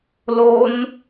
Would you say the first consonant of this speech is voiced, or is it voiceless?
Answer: voiced